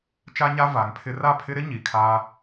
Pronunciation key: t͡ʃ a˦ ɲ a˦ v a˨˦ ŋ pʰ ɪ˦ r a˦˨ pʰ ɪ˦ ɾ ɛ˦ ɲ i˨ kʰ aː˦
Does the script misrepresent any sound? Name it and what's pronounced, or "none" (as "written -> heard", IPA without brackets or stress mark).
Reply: ɛ˦ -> ɪ˦